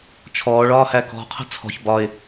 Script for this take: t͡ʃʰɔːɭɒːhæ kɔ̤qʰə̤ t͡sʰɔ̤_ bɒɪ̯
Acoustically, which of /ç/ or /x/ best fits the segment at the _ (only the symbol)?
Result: ç